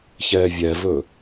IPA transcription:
ç ɛː vʲ ɛ v ɵ

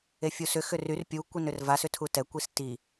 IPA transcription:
e fʲ u s ʏ x ʏ r y r pʲ u kʷ i n ʏ r v a s ʏ tʰ u t ɛ kʷ i s t i

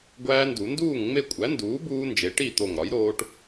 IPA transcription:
ɡʷ æː˦˥ n d u˨˩˦ n d uː˥˨ ŋ ŋ͡m e˥˨ kʷʼ æ˩˥ n d uː˩˥ b uː˦˥ n d͡ʒ e˩˥ ʈ i˥˨ t̪ o˧˩ ŋ ɾ ɒ˩˥ j ɾ oː˦˥ ʈ

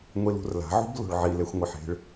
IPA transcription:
ŋʷ i l ṳ r l a̤ ʕ ṳ b l o̤ ɭ ʕ i l e xʷ ŋʷ e ħ e̤ ɭ

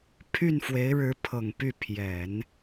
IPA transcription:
pʰ y˥˩ n f w e˧˥ ɪ̯ ɻ ɻ̩˧˥ pʰ ɤ˨˩ ŋ p y˥˩ pʰ j ɛ˨˩˦ n

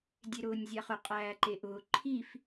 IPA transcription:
dʲ e ɾ ʊː nʲ zʲ a χ ʊ qʼ æː ǃ e ʔ ʊː ǃʰ i f

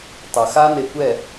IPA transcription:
tˤ ɐ˨ x a˦ n e˧ kʷ ɛ˦˨

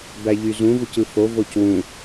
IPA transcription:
b æ ʎ y z ũ v u c ɯ f o v o c w ũ

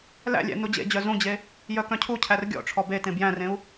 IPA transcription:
l æ̰ lʲ æ̰ n u d͡ʑ ḛ d͡ʑ œ z ũ d͡ʑ e | j œ k œ̃ cʰ u cʰ æ r ɡʲ ɔ̰ ʈ͡ʂʰ ɔ b e t ẽ b j æ̃ r ẽ u̯

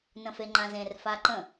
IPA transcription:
n ə̃ f e ŋ͡ǃ ã z ẽ r f a ǃ ə̃

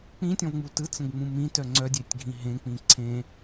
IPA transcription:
k͡p ĩ tʲ ɔ̃ v ŋ͡m u t ɯ t͡s ə̃ ɡ ŋ͡m ũ m ĩ t œ ŋ͡ǀ œ dʲ e tʲ ɡʱ ĩ ɦ ẽ k͡p ĩ ǀʰ ẽ

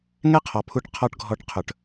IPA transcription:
ŋ ɛ˦ qʰ ɔ˨ pʰ u˧ ʈ qʰ ɔ˧ ʈ ɡʱ ɔ˨˦ ʈ qʰ ɵ˨ ʈ

